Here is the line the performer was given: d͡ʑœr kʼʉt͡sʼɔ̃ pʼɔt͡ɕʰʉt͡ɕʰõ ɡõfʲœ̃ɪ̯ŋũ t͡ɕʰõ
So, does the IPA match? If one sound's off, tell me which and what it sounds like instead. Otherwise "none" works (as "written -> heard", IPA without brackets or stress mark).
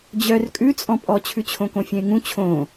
ɡ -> k